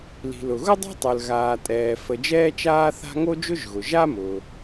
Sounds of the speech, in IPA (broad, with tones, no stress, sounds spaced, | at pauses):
l i̤˩ l ʊ˩ ɣ ʊ˥ dˤ a̤˥ tˤ ə˞˩ l ɣ aː˩ tʼ ɛː˩ f ə˩ d͡ʒ ɛː˧ t͡ʃ aː˧ θ a̤˧ ŋ o˥ d͡ʒ ʊ˥ ʒ ɣ ʊ˩ ʒ a˥ m ʊː˩